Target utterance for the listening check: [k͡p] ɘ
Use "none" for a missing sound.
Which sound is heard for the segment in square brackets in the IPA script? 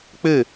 k͡p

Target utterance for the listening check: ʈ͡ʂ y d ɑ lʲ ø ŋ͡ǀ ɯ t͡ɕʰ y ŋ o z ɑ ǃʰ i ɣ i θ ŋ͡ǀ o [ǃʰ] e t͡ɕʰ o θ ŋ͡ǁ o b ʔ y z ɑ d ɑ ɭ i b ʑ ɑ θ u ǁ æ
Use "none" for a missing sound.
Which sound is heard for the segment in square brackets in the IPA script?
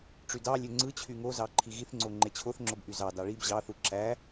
ŋ͡ǃ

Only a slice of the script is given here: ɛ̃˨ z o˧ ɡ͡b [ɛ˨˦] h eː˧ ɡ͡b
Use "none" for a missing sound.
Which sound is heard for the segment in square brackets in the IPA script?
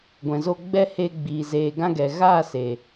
ɛ˦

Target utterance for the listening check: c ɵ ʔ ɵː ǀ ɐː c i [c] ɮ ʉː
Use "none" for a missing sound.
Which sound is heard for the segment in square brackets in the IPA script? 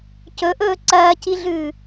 none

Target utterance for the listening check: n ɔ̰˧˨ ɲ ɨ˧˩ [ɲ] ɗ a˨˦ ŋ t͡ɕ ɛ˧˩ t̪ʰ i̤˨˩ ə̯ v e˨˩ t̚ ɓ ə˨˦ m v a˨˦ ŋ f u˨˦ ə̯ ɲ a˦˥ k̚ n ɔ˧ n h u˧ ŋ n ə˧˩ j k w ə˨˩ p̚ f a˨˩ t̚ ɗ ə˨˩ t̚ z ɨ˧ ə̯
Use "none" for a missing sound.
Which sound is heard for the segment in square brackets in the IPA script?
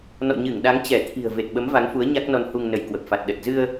ŋ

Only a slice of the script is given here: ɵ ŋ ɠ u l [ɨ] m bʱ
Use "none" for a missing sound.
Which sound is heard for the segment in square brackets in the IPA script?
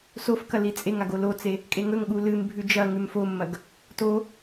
ɨ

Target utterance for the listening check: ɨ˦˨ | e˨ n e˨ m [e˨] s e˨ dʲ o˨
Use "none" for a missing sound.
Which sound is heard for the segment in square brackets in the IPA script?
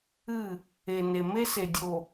e˦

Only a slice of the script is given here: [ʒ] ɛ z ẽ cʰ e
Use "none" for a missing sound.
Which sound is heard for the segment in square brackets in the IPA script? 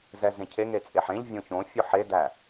z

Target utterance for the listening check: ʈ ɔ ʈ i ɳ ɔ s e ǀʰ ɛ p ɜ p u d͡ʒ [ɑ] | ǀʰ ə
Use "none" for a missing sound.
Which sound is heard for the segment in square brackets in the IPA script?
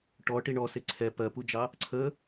ɑ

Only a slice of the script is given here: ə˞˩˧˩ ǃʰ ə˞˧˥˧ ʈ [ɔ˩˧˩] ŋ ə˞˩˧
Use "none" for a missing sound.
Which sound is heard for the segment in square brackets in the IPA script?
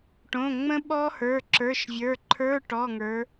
ɔ˩˧˩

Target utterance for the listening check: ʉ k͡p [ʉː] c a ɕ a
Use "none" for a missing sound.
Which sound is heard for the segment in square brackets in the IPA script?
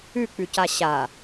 ʉ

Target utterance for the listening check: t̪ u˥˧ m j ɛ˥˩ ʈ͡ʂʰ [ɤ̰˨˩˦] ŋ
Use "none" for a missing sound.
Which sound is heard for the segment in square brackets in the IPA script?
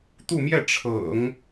ɤ̰˨˩˦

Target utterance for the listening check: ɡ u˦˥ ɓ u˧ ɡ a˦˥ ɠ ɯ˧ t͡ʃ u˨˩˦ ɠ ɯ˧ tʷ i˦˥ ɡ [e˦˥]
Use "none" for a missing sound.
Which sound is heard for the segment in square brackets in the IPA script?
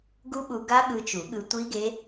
e˦˥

